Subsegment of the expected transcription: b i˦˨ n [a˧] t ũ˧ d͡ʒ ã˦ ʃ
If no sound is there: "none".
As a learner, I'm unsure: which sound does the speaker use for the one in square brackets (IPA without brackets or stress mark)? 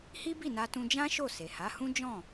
a˧